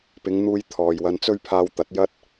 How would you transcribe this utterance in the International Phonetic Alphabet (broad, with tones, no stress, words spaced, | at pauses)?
pɪ˨˧ŋn̪uː˧j t̪ʰɔː˨jwɐ˧nt͡sɵ˥ɥ pʰaː˧wt̪ɐ˨˥t̚jɐ˥t̚